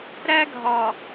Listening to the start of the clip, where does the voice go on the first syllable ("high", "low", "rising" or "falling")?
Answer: high